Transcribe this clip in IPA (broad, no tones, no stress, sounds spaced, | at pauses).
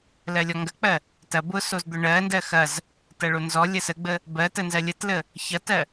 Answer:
l ɜ lʲ ɔ ŋ ɡ ɐ k͡p ɜ | t ɐ b ʊ s o z d̪ ʊ ɳ ɜ n d ɜ x ɐ z | t ɐ ɭ o n z ɔ lʲ ə s ə ɡ͡b ə | b ɜ t ə n z ɜ lʲ ə t l ə | ç ɐ t ɜ